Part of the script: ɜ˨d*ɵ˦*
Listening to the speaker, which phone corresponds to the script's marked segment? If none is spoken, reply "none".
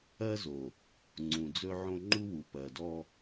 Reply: ɔ˦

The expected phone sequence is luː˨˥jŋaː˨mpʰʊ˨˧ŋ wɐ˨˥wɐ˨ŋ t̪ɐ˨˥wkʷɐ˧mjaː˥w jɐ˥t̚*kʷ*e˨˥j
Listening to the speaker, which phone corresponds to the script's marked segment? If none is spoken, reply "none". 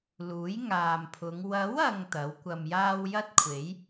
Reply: kʷʰ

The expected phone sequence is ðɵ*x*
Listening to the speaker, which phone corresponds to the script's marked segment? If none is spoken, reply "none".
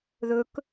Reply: k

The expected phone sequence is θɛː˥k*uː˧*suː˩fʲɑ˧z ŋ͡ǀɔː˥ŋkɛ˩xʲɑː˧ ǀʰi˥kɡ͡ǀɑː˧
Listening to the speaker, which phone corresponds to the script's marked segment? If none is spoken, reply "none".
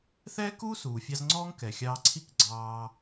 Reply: uː˥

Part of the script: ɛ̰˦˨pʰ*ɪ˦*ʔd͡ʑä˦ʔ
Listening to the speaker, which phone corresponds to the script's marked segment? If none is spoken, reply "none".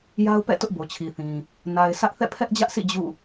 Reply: ɛ˦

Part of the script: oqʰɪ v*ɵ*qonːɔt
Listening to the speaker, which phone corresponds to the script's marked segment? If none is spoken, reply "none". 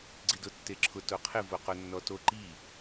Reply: o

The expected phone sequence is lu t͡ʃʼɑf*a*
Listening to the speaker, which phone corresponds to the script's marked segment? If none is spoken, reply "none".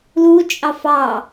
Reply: ɑ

